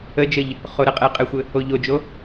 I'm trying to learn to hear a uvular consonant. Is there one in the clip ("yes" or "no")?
yes